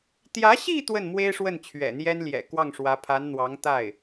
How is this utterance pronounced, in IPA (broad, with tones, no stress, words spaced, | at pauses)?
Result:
t̪jä˧˥ɕi˥˧ t̪wə˥˩nmwe˥ɪ̯ʂwə˥˩n t͡ɕʰɥɛ̰˨˩n̪jɛ˥nljɛ̰˨˩ kwɑ˥˩ŋʂwä˧˥pʰa˧˥n n̪wɑ˧˥ŋt̪a˥˩ɪ̯